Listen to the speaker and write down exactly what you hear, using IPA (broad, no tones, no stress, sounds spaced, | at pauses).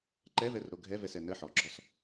ǃ ɛ v ɛ r ɾ o ɡʱ ɛ v ɛ s ɛ n ə ħ ɔ ɡ͡ǁ ɔ s